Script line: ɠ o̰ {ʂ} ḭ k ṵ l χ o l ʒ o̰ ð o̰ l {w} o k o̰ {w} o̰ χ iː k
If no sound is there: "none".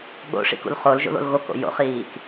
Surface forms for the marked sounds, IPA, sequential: ʂ, ɣ, j

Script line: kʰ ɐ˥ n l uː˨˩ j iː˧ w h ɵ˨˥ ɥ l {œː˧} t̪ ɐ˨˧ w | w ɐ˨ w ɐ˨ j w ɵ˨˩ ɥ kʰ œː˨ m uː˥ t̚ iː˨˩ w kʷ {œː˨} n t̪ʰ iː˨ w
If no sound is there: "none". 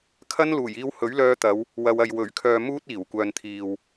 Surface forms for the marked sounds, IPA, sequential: œː˧, œː˨

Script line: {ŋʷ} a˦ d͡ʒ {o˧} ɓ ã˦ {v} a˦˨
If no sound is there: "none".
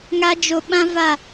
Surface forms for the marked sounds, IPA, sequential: ŋ, o˧, v

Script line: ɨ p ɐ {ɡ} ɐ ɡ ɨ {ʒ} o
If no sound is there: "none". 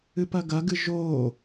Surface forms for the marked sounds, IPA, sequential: ɡ, ʒ

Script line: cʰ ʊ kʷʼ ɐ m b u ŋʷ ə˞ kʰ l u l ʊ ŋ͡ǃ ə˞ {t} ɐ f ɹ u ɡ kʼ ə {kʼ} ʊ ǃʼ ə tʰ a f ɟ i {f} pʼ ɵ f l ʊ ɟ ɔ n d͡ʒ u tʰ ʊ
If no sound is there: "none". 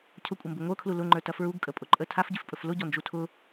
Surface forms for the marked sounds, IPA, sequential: t, pʼ, f

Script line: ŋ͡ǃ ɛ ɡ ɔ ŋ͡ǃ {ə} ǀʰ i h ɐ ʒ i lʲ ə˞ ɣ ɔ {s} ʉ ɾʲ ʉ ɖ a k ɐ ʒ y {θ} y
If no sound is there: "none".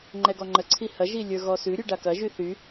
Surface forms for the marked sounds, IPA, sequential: ə, s, θ

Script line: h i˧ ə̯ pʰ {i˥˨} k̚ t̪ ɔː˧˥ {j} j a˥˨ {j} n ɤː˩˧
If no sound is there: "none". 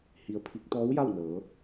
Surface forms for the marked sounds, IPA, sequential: i˧˥, w, w

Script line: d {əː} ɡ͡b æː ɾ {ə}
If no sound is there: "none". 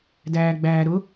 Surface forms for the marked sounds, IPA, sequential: æː, ʊ

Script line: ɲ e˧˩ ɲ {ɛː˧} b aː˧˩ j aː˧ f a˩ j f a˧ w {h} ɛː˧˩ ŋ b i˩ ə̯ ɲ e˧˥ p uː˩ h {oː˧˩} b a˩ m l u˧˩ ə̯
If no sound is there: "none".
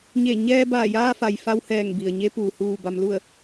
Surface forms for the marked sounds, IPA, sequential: ɛː˧, h, uː˧˩

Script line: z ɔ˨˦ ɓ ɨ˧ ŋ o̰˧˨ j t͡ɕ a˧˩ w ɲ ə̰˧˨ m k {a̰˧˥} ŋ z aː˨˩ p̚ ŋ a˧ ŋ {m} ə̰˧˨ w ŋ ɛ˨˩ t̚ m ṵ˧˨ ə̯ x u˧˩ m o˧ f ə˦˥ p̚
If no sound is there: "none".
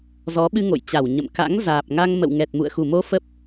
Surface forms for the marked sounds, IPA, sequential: a̰˧˥, m

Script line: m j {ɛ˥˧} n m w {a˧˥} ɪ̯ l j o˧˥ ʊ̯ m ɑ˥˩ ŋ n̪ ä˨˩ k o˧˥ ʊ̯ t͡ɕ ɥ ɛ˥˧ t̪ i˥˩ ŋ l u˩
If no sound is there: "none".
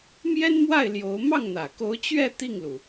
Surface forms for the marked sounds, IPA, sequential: ɛ˥, a˥˩

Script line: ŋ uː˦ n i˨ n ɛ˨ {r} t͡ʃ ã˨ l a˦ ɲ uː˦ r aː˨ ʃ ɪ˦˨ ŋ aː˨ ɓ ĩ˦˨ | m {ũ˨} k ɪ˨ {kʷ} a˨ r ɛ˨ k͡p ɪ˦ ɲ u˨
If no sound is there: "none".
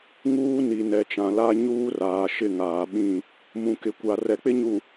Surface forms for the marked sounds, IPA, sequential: none, ũ˨, kʷ

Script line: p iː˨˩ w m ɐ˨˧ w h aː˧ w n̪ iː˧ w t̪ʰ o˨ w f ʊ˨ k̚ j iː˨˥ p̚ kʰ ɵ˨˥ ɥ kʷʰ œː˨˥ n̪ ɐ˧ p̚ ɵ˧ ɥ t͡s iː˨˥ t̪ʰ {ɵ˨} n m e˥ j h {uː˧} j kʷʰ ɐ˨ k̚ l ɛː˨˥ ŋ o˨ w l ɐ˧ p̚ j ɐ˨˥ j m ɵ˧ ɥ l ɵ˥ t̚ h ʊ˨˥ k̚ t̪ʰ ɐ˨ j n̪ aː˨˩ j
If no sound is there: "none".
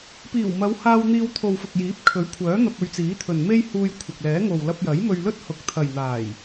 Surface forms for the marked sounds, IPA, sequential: ɵ˨, uː˧

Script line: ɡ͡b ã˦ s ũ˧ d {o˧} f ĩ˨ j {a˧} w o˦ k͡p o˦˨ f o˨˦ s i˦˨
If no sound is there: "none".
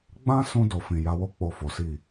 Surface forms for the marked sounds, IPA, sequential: o˨, a˧

